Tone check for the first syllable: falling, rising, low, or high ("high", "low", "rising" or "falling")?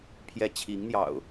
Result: falling